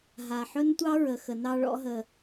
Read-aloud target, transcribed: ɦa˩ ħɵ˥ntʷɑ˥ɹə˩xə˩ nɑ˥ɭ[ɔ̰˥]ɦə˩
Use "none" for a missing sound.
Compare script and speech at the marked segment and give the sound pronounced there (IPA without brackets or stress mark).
ɔ̰˥